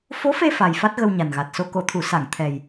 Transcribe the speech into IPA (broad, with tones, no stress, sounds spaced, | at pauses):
f o˧˥ f e˧ f a˨˩ j f a˦˥ t̚ ɣ ə˧ w ɲ a˨˩ n ɣ a˨˩ t̚ s o˧ k o˨˩˨ t̪ʰ u˨˩˨ s a˨˩˨ ŋ t̪ʰ ɛ˨˩ j